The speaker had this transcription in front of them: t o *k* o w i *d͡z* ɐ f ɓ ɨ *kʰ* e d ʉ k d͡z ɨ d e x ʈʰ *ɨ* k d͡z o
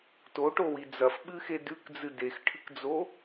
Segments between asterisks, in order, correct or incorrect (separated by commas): incorrect, correct, incorrect, correct